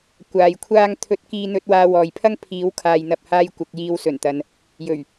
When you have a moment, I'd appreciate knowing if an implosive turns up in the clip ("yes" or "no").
no